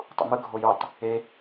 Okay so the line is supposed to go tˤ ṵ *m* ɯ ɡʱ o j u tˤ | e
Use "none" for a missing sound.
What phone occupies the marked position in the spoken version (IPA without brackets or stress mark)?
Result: m